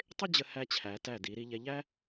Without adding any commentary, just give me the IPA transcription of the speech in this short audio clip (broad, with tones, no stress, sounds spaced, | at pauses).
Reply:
tˤ ɪ˥ d͡ʑ ə˧ h æ˧ t͡ɕʰ æ˩˧ t æ˧˩ d i˩˧ ɾ i˧ ʎ ɛ˧ ʎ æ˥